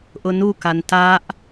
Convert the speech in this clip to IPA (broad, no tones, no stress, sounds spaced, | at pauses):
ʔ ʊ n u k a n t a ʔ